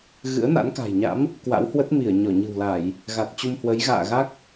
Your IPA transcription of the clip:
ɣɨ̰˧˥ə̯na̰˧˥nka̤˨˩jɲa̰˧˥m | kwa̰˧˥whwə˦˥t̚mi˧˩ə̯ ɲɔ˧˩ɲɨ̤˨˩wla˧˩˨j | ɣa˨˩t̚t͡ɕu˧mhwə˨˦j ɣa̰ː˧˨ɣa˦˥k̚

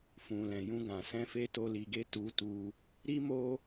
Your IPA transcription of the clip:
fũ˨lɛ̃˨jũ˧ɡã˨ sɛ̃˧fe˧to˧ li˧ɡe˦ tu˧tu˧ | ɾi˦mo˦

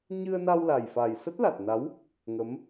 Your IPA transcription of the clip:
ɲɨ˧ə̯na˧wla˨˩jfa˨˩j sə˦˥t̚la˨˩t̚na˨˦w | ŋə˨˦m

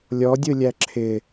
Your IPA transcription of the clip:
lʲɔdʲɯlʲæ ǁʰɪ

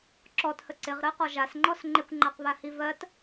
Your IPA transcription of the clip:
ǁɔthə ǀɪʁɾɜqɔ ʒasŋ͡ǃɔs ŋ͡ǃɪkʷŋ͡ǃaqβahi vɜt

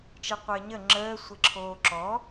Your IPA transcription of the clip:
t͡ʃeqʷəːɲə ŋ͡ǁəː sʷeǁʰoːǁɔ

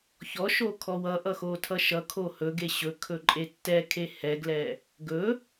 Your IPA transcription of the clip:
çɔʃo kʰɔwʌʔʌ xotʰʌʃʌkʰo hɵɡe ɕɵkʰɵ ǃʼetːɛkʰe hɛɡlɛ | ɡɵ

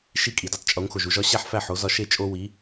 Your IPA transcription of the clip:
ʃi˥˩kʼi˩du˥tˤ t͡ʃʼo˩˥ŋxo˩ʒu˧ ʒɒ˥ ɕæ˥˩ħfæ˥˩ ħo˩˥zɒ˧ ʃe˥˩ t͡ʃʼo˥ wi˩˥

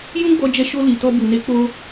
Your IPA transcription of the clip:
jũ˦ɡ͡bɔ˧d͡ʒɛ˧ʃo˧ li˨ tɔ˧bu˨ne˨˦ k͡po˧

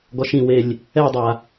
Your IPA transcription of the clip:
ɡɔʃĩwelʲ | ɛdˤa

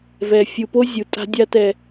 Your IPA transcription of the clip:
vɛ˨ fʲu˨po˦zʲu˨ tʼa̤˦dʲa˦tɛ˨

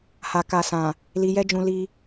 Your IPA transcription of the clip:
ha˨ ka˨sã˨ | li˧jɛ˦d͡ʒũ˧ li˧

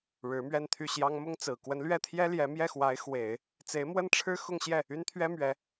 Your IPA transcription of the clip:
ɻɻ̩˧˥mɥɛ˥˧nt̪ʰy˥˩ɕjɑ˥ŋ mʊ˥ŋt͡sɹ̩˨˩ kwə˧˥nlɥɛ˥˩t̪ʰjɛ˥ ljɛ˧˥mjɛ˥˩xwa˧˥ɪ̯ xwe˨˩˦ɪ̯ | t͡se˧˥ɪ̯mwə˥˩nʈ͡ʂʰɻ̩˥ xʊ˥˧ŋɕjɛ˥˩ | y˥nt̪ʰɥɛ˥mɥɛ˧˥

